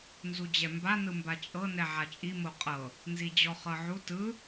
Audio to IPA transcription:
nzud͡ʑɛmba nɯmbat͡ʃʼɤ nɛʕat͡ʃʼi moqʼɤ | nzid͡ʑɔχɤʕu tɯ

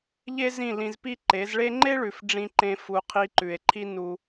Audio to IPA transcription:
ʎe˦zĩ˦˨ lĩ˧zpi˦ ǃe˨˦zɭe˦ ŋ͡ǃe˦ɭʉ˨f ɖ͡ʐĩ˧ǃẽ˧ fu˧ qʰi˧ǃʉ˨e̯ǃʰi˦ nu˧

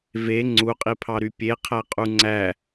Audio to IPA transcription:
ve ŋ͡ǀuqʼipʰɑɾy pʲeqʰæqʼu ŋ͡ǀæ

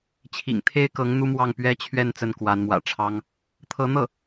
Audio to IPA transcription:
t͡ɕʰḭ˨˩ŋt̪ʰe˥ɪ̯kɤ˧˥ŋ n̪u˥mwɑ˥˩ŋ pɥɛ˥t͡ɕʰɥɛ˥˧n t͡sə˥˩nkwa˧˥nmwä̰˨˩ʈ͡ʂʰɑ˥ŋ | t̪ʰɤ˧˥n̪ɤ˥˩

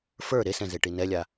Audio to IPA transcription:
fə˞ ɾesɛ̃ zeʈinɛlʲa

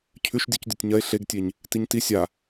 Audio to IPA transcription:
cʰʉʃ dʲucdʲotʲɲɐe̯ ɬeɡtʲeɲ | tiɲti sʲa

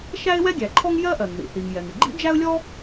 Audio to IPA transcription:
ʃæ˥ɪ̯wɛ˥ɡʲæ˩ǃʰɔ˥ŋ jɜ˥ʔɜ˩ŋðḭ˩ θi˩ŋ jɛ˩ŋɪ˩ ɡ͡ǃḭ˥d͡ʒæ˥ʊ̯lʲɔ˥

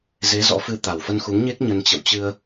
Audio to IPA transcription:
ze˨˦ zɔ̰˧˥fɨ˧ t̪a˨˩wfə˧nxu˨˦ŋɲe˦˥k̚ ɲə˧n t͡ɕə̰˧˨wt͡ɕɨ˧ə̯

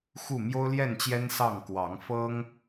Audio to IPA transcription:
xu˥˨ mjo˦ʊ̯ljɛ˥˨nt͡ɕjɛ˦n sɑ˥˨ŋ kwɑ˨˦ŋfɤ˦ŋ

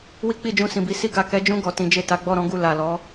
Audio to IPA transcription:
wi˦k͡pi˦˨d͡ʒũ˧ sĩ˨bi˧ si˧ɡa˨kɛ˨˦d͡ʒũ˧ ɡɔ˨tĩ˨˦d͡ʒe˦˨ ta˨˦ɡ͡bɔ˦˨ɾɔ̃˨˦ɡu˦˨ la˨lɔ˨˦

